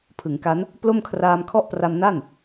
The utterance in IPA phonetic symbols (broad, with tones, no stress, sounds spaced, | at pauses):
pʰ ɯ˩˦ ŋ k a˦˥ n | p l o˥˩ m kʰ r aː˧ m kʰ ɔ˥˩ ʔ p r a˧ m n a˥˩ n